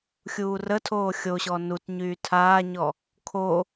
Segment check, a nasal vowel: absent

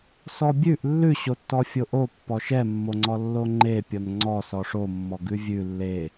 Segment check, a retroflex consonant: present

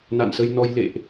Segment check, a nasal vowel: absent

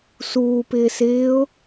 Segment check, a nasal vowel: absent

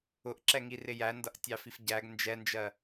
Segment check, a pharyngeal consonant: absent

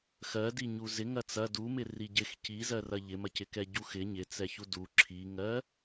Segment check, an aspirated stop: present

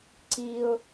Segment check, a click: present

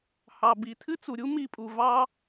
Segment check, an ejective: present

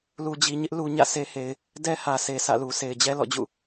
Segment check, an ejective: absent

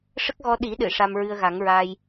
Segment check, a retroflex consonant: present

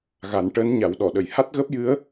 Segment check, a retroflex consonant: present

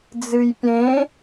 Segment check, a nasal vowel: present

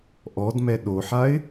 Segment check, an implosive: present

